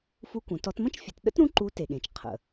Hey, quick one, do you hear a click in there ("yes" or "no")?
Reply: yes